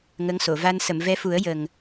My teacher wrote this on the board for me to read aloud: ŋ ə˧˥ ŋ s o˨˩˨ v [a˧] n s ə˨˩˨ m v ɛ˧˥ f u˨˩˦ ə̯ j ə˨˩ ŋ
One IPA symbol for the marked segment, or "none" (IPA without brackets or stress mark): a˧